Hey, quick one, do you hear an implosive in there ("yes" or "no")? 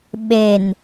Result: yes